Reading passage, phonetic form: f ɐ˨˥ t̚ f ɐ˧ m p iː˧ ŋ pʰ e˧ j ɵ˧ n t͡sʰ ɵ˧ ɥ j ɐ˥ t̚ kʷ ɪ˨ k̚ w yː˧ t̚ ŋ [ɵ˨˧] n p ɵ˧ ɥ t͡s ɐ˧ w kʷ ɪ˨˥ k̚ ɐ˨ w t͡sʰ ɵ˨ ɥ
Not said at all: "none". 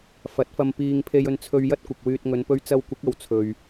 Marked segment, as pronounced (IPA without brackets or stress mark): ɵ˨˧